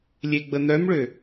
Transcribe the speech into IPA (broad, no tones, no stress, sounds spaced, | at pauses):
lʲ e ɡ͡b ə n̪ œ m ɭ ø